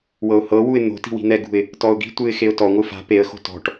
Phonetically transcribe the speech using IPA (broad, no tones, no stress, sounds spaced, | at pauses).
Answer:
w ɤ ʊ̯ h ɤ w u ɪ̯ n̪ o̤ t i̤ w i̤ n̪ ɛ ɡ ṳ ɪ̯ | t ɔ ʊ̯ ɡ i̤ tʷ ɯ ɪ̯ x e ʊ̯ t ɔ ŋʷ ɯ f a̤ p e ə̯ x o̤ t ɔ̤ ʈ